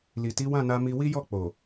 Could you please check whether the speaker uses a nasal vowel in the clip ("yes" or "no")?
yes